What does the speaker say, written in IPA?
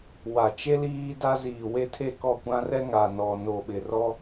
w a˨ t͡ʃ e˦ l iː˦ d a˦ z iː˨ w e˦ tʰ e˦˨ k ɔ˦˨ kʷ ã˦ r ɛ˦ ŋ a˨ n ɔ˨ n o˨ ɓ ɪ˨ r ɔ˦

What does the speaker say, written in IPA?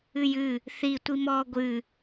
ɨ j ɨ | θ i tʷ i m ɔː ɡʷ ɨ

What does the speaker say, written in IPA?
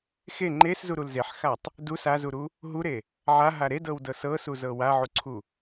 x e ŋ͡ǃ e s z u ɾ u l z e ħ x a tˤ | d u s a z u ɾ u | ɦ u ɾ e | ʕ a ɦ a ɾ e d ɤ w d ɤ s ɤ s u z ɤ w a ʕ u ǀʰ u

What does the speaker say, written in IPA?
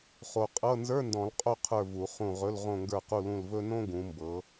χ o˨ qʼ ɤ˧˥˧ n z ə˞˧˥˧ n d ɔ̃˨˩˦ l qʼ o˦˨ qʰ ə˞˦˨ v u˨˩˦ χ ũ˦˨ ʁ ɵ˧˥˧ l ʁ õ˦˨ ŋ ɡ ə˞˦˨ q u˦˨ l ũ˦˨ l v ɵ˥ n õ˥ ɡ ũ˨˦ m b ɤ˨˦

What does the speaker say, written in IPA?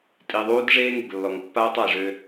tʼ i˨ ðˤ uː˦ d ʐ eː˦ ŋ e˨ ɡ lː ɔ˨ ŋ pː aː˦ tˤ a˨ i̯ ʐ ø˦

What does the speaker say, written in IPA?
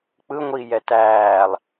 k͡p ɯ ŋʷ iː j ɛ t æː lˠ

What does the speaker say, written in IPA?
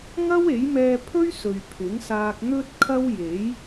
ŋ ɐ˥ w e˨˥ j m ɛː˧ pʰ ɵ˥ ɥ s ɵ˨ ɥ pʰ ɪ˨˥ ŋ s aː˧ k̚ n̪ ɵ˧ t̚ kʰ ɐ˥ w j e˨˥ j

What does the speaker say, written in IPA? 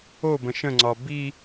o b ə̃ ʃ ə̃ ŋ͡ǀ ɒ b i

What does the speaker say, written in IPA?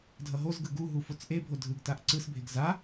dʱ ʌ ɦ o z ɡ ɯ ɡ u ɦ u f o t͡s ʔ e bʱ o dʱ ɯ ɡ t a ʔ ǀ ɯ s bʱ e ɡ z a

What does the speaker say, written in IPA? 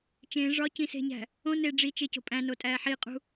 t͡ʃ ẽː ʐ ɒ c ĩ s e̤ ɲ æ̤ | õ n e ɖ͡ʐ i t͡ʃ e c o̤ pʼ æ̃ n o tʼ æː ħ i qʼ ṳ

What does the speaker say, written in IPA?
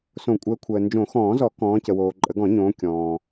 s õ˨˩˦ kʷʼ əː˨˦ kʷʰ əː˨ n d͡ʒ õ˨˩˦ x ɔ̃ː˨˩˦ z ɔ˨˩˦ k ɔ̃ː˨˦ c ə˨ w oː˨ ǃʼ ə˨˩˦ ɡ ɔ̃˨˩˦ ɲ õː˨˦ kʲ ɔ̃ː˨

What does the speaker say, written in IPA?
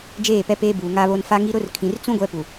d͡ʒ eː˦˨ p ɛ˦ p eː˦ b uː˨ ŋ a˦ β o˦ n f a˦ ŋ i˦ ɾ ʊ˦ r kʰ ĩ˨ r t͡s ũ˦ ɡʷ ɛ˦ p u˨

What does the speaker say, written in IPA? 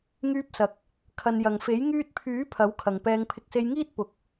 ŋ yː˧ p̚ s ɐ˨ k̚ | kʰ ɐ˨ n j ɐ˨ ŋ f e˨˥ j ŋ yː˧ t̚ pʰ yː˨˥ pʰ ɐ˨˥ w kʰ ɐ˨ ŋ p ɛː˧ ŋ pʰ ɪ˧ k̚ s e˧ j ŋ iː˥ t̚ p ʊ˨˥ k̚

